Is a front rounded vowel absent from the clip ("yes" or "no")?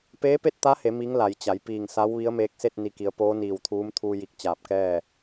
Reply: yes